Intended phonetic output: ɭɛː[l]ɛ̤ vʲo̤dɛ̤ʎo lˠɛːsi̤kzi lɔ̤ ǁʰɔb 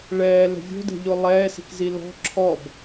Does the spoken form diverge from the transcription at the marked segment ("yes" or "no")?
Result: no